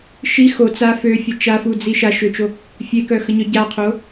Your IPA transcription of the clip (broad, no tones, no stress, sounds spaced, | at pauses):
ʃ i x o t͡s a f ø fʲ ə t͡ʃ a f u d͡z i ʃ a ʃ ø t͡ʃ o | fʲ e k œ x ə ɲ œ ɟ a qʰ o